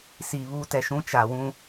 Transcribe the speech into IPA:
siː˨βuː˦tɛ˨ʃũ˦ t͡ʃa˨wũ˦

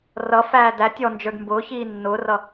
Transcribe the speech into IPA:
rʌfæː dætʲ ɔnd͡ʒə˞d mbʊːçiː nːʊːrʌ

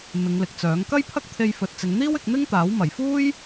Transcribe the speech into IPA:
mɪ˨˧ŋlɪ˨k̚t͡sœː˨˥ŋ kɐ˥jpʰɐ˥k̚t̪ʰe˧j fɵ˨t̚t͡sɪ˨˧ŋn̪iː˥wɪ˧k̚ n̪ɪ˥ŋt̪aː˨˥w mɐ˨˩jfuː˥j

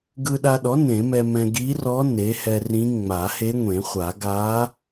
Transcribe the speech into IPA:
ɡɯ˧ɗa˧ɗɔ˩˥ nẽ˨˩˦mɛ˧mɛ̃˧ ɡi˧˥rɔ˧˥ ne˩˥hɛ˧rĩ˧˥ ŋ͡ma˨˩˦ he˧˥ŋʷẽ˨˩˦χʷa˨˩˦ ɡa˧˥

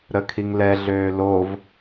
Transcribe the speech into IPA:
ɾəkʰiŋlɛ ɮøːlov

